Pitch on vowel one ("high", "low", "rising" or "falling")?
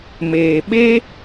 low